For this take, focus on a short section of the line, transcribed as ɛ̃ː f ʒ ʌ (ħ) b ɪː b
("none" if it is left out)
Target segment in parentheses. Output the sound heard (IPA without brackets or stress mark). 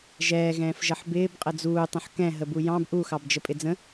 ħ